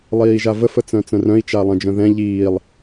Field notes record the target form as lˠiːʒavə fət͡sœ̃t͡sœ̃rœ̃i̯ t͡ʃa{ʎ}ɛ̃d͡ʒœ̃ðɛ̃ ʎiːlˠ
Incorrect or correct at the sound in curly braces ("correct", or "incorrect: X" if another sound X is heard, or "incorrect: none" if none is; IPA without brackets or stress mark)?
incorrect: lˠ